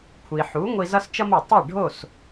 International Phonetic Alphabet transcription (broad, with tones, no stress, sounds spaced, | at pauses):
kʷʰ i˩ ħ u˩˥ ŋʷ i˧ z ʌ˥ s t͡ʃ ʌ˥ m o˩ tˤ e˥˩ ɖʱ o˥˩ s